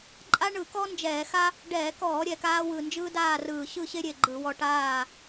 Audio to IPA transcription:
ǃʼ a˥ ɳ ɯ˧˩˧ k ɔ˥ n d͡ʒ ɛː˧˩˧ x a˥ | ɖ ɛː˧˩˧ k ɔː˧˩˧ ɾʲ ɛ˨˩ k aː˧ w ɯ˨˩ n d͡ʒ ɯː˥ d aː˥˨ r ɯː˨˩ ɕ ɯ˥˨ ɕ e˥ ɾʲ e˨˩ ɡ͡ǃ ɯ˧˩˧ w ɔ˧ ʈ aː˥˨

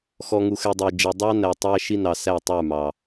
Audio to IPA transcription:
x ɔ˨ ŋ u˨ x ɛ˨ dˤ æ˨ d͡ʒ ɛ˨ dˤ ɑ˦ n æ˨ tˤ æ˦ ʃ i˦ n ɑ˨ s æ˦˨ tˤ ə˞˦˨ m ɑ˨

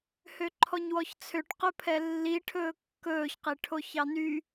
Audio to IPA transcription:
h ø ǃʰ ɔ ɲ w ɔ ç t͡sʰ ø ʈ q ɵ pʰ ɛ lː i ʈʰ ɵː kː ɵː ç q e ʈʰ o ç ɑ n y

